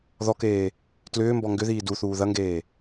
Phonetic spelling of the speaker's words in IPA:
ð ɔ k eː | t l ʏː m b ɔ ŋ ɡ ʏ ð iː d u θ uː ð ɐ ŋ ɡ eː

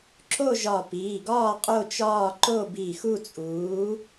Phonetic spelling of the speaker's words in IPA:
ǁ o˥˨ ʒ ɒ˧˩ p iː˩˧˩ ɡ ɒː˥˨ qʼ o˥˨ t͡ʃ ɒː˥˨ ǃ o˥˨ b i˧˩ x u˥˨ t͡sʼ uː˨˥

